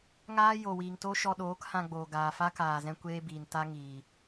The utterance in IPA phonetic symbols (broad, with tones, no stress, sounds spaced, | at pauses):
ŋ aː˦ j o˨ w iː˨ ŋ t o˦ ʃ ɔ˧ ɗ oː˨˦ k h ã˧ ɡ͡b oː˨ ɡ aː˨ f a˦ k aː˨ z ɛ̃˧ kʷ eː˦ b iː˨ n t a˦ ŋ iː˨